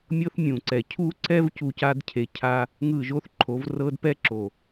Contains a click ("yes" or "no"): yes